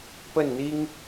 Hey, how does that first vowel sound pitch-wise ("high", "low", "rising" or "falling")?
falling